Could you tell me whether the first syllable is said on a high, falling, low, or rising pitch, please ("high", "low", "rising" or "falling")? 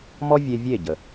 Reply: high